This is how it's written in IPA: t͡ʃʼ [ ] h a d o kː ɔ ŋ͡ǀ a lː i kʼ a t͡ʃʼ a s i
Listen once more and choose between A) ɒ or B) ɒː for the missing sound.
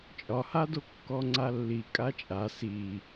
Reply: A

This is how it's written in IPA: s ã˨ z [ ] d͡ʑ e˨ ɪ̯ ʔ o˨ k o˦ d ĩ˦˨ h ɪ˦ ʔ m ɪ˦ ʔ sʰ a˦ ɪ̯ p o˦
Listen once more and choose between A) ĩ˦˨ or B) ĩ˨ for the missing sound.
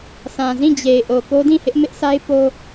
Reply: A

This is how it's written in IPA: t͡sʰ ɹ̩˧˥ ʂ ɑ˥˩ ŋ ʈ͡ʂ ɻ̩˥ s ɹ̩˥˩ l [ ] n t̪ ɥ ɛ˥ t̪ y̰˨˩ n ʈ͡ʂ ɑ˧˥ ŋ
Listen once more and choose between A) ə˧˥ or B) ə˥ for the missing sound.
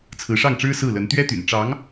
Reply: A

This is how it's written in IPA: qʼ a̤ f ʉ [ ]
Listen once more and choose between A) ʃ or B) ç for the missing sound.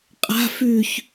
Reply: B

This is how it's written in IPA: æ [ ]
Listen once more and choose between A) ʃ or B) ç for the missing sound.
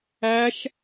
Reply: A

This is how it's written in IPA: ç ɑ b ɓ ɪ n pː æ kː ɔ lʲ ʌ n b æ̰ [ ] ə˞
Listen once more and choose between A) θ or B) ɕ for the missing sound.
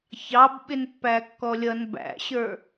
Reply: B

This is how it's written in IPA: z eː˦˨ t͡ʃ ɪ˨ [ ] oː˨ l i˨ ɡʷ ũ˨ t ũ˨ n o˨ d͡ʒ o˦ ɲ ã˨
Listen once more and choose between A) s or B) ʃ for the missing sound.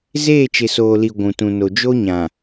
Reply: A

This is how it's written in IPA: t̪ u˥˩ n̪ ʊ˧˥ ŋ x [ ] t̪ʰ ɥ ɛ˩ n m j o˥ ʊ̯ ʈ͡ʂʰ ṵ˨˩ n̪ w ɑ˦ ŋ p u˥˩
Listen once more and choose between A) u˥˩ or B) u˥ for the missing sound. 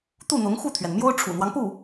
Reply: A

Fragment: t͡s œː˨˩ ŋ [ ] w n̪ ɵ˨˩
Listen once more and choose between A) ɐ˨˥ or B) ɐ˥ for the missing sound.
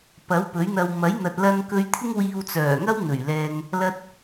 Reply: B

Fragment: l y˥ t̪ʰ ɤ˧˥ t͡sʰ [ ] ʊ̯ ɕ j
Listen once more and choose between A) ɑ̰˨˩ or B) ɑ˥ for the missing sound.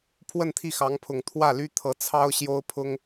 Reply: B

